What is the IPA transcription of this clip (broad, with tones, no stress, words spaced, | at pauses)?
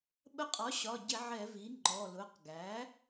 ɓə˧qʼɒ˩˥ ɕɒ˩˧˩ɟɪ˧˩˧ ʕɛ˧˩˧vi˩˥ ŋ͡ǃɔ˩˧˩lʊ˩˧˩q ɡæ˩˥